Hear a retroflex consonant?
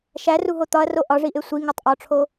yes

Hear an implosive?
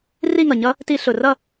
no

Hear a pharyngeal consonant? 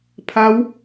no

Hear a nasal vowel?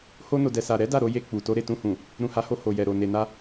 yes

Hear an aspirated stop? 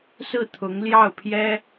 yes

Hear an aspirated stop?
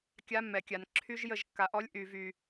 yes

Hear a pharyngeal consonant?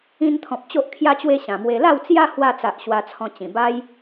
no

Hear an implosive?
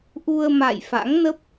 no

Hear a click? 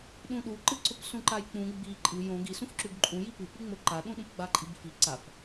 yes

